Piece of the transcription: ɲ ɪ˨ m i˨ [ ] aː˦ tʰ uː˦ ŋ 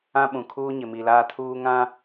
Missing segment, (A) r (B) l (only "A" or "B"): B